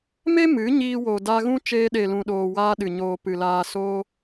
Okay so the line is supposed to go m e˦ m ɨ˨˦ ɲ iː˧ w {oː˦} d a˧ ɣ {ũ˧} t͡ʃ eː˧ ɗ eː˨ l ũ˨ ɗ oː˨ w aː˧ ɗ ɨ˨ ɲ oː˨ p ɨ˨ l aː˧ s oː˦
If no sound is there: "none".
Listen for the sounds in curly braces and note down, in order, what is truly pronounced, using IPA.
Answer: oː˨, ũ˦

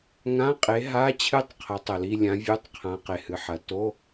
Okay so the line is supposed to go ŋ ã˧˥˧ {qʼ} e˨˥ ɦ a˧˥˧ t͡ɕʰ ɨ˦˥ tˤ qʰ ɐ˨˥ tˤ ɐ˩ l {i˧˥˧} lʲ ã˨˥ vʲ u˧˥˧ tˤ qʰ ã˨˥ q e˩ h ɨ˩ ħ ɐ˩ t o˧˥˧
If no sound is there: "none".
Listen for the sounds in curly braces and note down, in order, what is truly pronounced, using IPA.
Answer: qʼ, i˧˥˧

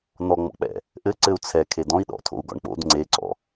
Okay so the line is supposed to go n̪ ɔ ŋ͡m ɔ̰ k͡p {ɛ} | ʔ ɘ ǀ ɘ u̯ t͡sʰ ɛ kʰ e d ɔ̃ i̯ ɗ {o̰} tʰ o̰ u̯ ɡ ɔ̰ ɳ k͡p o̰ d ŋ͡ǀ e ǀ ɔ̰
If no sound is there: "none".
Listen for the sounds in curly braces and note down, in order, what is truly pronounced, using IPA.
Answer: ɛ̰, ɔ̰

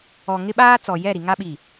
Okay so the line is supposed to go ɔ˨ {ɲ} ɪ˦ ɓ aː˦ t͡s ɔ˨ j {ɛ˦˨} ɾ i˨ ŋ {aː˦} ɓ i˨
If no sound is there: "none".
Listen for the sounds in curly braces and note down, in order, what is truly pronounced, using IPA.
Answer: ŋ, ɛ˦˨, a˦

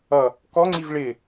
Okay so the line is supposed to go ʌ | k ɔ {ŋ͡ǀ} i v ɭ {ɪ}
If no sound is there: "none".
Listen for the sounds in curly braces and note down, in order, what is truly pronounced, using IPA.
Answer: ŋ͡ǀ, ɪ

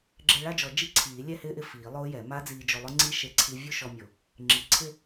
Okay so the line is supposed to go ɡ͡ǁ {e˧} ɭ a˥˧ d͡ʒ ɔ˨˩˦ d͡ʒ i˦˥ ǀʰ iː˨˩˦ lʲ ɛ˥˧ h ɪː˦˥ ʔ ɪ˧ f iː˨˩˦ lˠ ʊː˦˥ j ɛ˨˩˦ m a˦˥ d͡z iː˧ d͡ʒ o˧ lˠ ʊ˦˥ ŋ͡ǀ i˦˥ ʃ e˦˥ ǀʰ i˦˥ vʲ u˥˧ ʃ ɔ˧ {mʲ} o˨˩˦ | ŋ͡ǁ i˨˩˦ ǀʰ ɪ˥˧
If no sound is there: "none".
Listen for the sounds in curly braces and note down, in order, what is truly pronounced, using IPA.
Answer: e˧, mʲ

